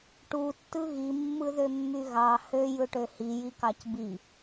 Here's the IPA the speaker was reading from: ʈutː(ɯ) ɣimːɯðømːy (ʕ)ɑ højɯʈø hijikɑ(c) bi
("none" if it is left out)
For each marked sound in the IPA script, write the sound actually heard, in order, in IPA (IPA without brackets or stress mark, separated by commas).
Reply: ɯ, ɣ, c